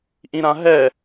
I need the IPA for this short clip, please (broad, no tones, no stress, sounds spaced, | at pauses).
ʔ ĩ ɾ ã ɦ ɛ